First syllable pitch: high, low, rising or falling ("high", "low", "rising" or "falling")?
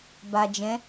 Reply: low